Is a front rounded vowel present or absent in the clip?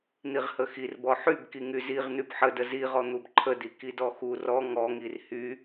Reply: present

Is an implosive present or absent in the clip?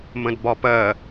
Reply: absent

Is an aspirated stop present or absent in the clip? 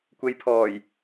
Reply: present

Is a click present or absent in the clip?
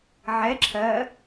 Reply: present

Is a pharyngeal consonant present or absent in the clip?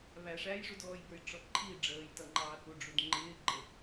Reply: absent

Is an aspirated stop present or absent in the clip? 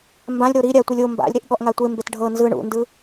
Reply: absent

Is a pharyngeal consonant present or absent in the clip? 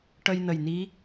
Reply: absent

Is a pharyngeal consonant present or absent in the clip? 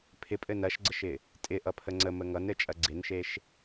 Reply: absent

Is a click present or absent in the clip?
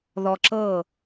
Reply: present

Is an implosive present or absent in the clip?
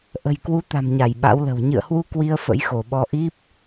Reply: present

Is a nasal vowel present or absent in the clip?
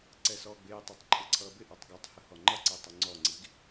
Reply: absent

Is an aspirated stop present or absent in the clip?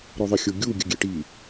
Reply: absent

